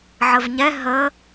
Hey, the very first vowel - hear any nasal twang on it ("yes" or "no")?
no